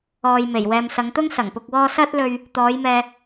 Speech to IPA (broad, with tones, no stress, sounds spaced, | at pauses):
ɔː˨ j m e˨˩ j w ɛː˨ m s ɐ˨˧ ŋ t̪ ʊ˥ ŋ s ɐ˨˩ ŋ p ʊ˧ k̚ w ɔː˥ s ɐ˥ t̚ l ɵ˧ ɥ | t̪ ɔː˨˧ j m ɛː˨